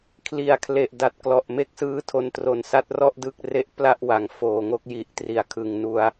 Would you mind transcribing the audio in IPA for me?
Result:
kʰ l i˨˩ a̯ kʰ l e˨˩ ʔ d a˨˩ t̚ k l ɔ˨˩ ʔ m e˦˥ k̚ s ɯː˦˥ tʰ o˧ n t r o˨˩ n s a˦˥ t̚ r ɔ˥˩ ʔ d ɯ˦˥ k̚ r e˦˥ ʔ p l a˥˩ ʔ w a˨˩ ŋ f oː˨˩ ŋ o˦˥ k̚ j i˨˩ ʔ t r i˩˦ a̯ kʰ ɯ˨˩ ŋ n u˧ a̯

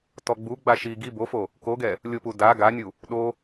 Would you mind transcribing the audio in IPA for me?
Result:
t ɔ ɡ͡b u ɡ͡b a ʃ i ɡ i b o f o | k o ɡ ɛ | lʲ ʊ p u d a ɡ a nʲ u | ɗ o

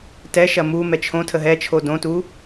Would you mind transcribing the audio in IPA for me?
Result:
t ɛ ʃ ɐ m u m ɛ t͡ʃʰ õ tʰ ə ɦ ɛ t͡ʃʰ o d õ t u

